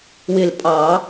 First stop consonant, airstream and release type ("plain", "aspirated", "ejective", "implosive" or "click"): ejective